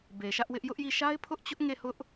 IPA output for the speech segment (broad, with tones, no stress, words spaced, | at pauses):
be˨ʃä˦ʔwɪ˦ʔ jʊ˦ʔji˦˨ ʃa˦ɪ̯pʰʊ˦ʔ t͡ɕʊ˦ʔŋe˦˨ hʊ˦ʔ